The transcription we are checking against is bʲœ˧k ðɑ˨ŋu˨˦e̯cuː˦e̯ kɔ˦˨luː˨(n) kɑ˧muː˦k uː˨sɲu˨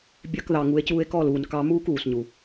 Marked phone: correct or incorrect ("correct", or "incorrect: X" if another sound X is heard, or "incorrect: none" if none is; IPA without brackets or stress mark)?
correct